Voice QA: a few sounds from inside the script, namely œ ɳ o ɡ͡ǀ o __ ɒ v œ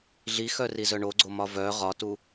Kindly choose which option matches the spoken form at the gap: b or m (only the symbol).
m